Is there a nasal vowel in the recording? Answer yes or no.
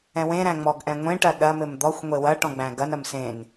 yes